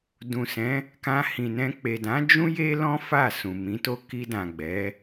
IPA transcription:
dũ˨sɛ̃˨˦ | kã˧hĩ˨nɛ̃˧ k͡pe˨dã˨˦ d͡ʒũ˦ je˦lɔ̃˦ fa˦˨sũ˨ mĩ˨˦to˦ ki˧dã˨ɡ͡bɛ˨˦

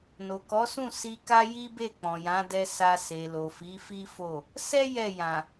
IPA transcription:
no˨kɔ˨˦sũ˦˨ si˧ka˦ji˦be˦˨ k͡pɔ̃˨jã˨˦dɛ˧ sa˧ se˨ lo˨fi˨˦fi˦fo˦˨ | sɛ˦ jɛ˦˨jã˨

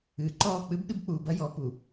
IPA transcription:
ɨː˨ǃɔː˦˨ k͡pɨ˦bɗɨ˦bk͡puː˨ bɐ˦jɔ˨˦pu˨

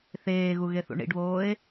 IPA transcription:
θeːɣu ɣeθṵɳḭɖβoːe̯

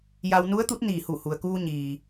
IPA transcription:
ja˧w nu˧˥ə̯t̪u˧˥t̚ niː˧˩hu˧˩hu˩ə̯kuː˧ ɲiː˩

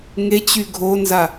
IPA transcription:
ŋet͡ɕy ɡʱonza

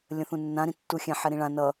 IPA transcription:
lʲə̃θũnːã ɾĩtːuxʲɛ̃ ħɛɾĩɭã nʌ

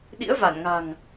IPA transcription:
ɗḭ˧˥ə̯va˧˩nŋa̤˨˩ŋ

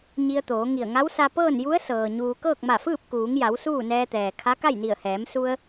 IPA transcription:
ɲi˧ə̯t̪oː˩˧ŋi˧˩ə̯ ŋa˧˥wsa˧ pɤː˥˨nju˧˥ə̯ sɤː˩ɲuː˧ kɤː˥˨k̚ma˧˩fɯː˥˨p̚ kuː˩˧ŋja˩˧w suː˥˨nɛː˧t̪ɛː˩ kʰa˧˥ka˥˨j ni˧˩ə̯hɛː˩˧m su˧ə̯

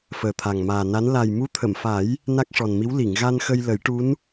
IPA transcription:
fəː˨˩t̪ʰa˨˩ŋmaː˨˩na˧˥n la˨˩jmu˧˥t̪ʰə˨˩˨mfa˨˩˦j | na˦˥k̚ʂɔ˨˩nmi˧˥w li˨˩˨ŋ ɣa˧nxə˧j lə˨˩˦jʈu˧˥n

